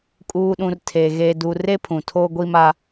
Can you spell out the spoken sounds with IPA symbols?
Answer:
kʼuː˨ɗũ˨r tʰe˨ ɣeː˨du˨re˦ pʰũ˨tʰoː˦ɡʷi˦ma˦

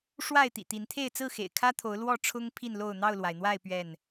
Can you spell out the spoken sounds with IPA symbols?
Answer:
ʂwa˥˨ɪ̯t̪ḭ˨˩t̪i˨˦nt̪ʰe˥˨ɪ̯ t͡sɹ̩˥˨xḛ˨˩ɪ̯kʰä˦t̪ʰo˨˦ʊ̯ lwɔ˥˨ʈ͡ʂʰʊ˦ŋ pʰi˥˨nlo˥˨ʊ̯ n̪ɑ˥˨ʊ̯lwa˩ɪ̯n̪wa˥˨ɪ̯ pɥɛ˥˨n

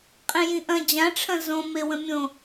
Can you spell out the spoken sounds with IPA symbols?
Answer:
qʼẽjĩʔɐ̃ d͡ʑãʈ͡ʂʰɐ̃ zõ mewə̃mʲõ

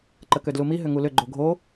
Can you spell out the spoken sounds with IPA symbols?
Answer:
ǃəkødlumi ɦʏŋulʏ ɡ͡ǃoɡʱo

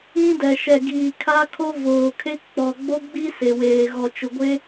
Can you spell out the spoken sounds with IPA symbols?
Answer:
ĩ˦ dɛ˨ ʃɛ˨ɡiː˨ kʰa˦kʰo˦ voː˨kʰe˦ k͡pɔ˨ɡ͡bo˦ɡ͡bi˦ se˨weː˨ ɣɔ˨t͡ʃʊ˨ ɡʷe˦

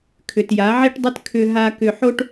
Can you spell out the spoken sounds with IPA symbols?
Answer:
kʰʏ˨tja˨˦ʕi˦ʈdˤʏ˦t kʰʏ˦ɦa˦kʏ˦ ħo˦ʈ

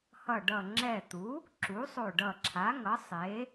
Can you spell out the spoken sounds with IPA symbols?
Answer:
hʌ˧˩ɖʌ˧˩ ŋ͡ǁɛ˧˩t̪u˩˥ | ǁu˩˥sˤo˧˩ɖʌ˧˩ǁʰa˩˥ ŋʌ˩˥sˤe˩˥

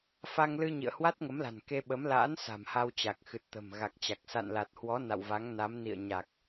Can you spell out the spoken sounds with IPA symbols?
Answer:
fa˧ŋlɨ˧ ɲḭ˧˨ə̯hwa˦˥t̚ŋə˨˦mla̤˨˩n ke˧ɓə˨˦mla̰ː˧˥n sa̤˨˩mha˧wt͡ɕa˨˩k̚xɨ˨˩t̚ t̪ə̤˨˩m ɣa˨˩k̚t͡ɕa˨˩k̚ sa̰˧˨nla˨˩t̚hwɔ˨˦ na̰˧˨wva˨˦ŋ na˨˦mnḭ˧˨ə̯ ɲa˨˩k̚

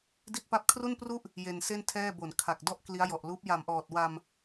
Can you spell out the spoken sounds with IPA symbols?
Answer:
di˥˩t̚pa˥˩p̚ kʰru˥˩npru˥˩ʔ | je˧nse˥˩ntʰɛː˥˩bo˨˩n kʰa˨˩k̚dɔ˥˩ʔ kli˦˥a̯jɔ˨˩ʔluː˦˥p̚ ja˨˩mʔɔː˨˩t̚ wa˧m

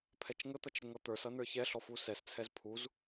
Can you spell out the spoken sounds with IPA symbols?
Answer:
pʰɛt͡ʃŋət̪ʌt͡ʃ ɾɪŋʌt̪ə˞sʌ nə˞çɛɬɔ fusɛst͡sʰɛz pʰuz

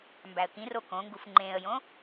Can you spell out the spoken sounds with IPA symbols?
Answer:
mbæə̯kĩro kõŋɡuf ŋ͡ǃẽə̯jõ

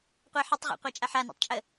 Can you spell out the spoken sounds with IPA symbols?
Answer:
qʷɛħətˤʁɛ̰ qʷat͡ʃʼaħana̰tˤ t͡ʃʼə

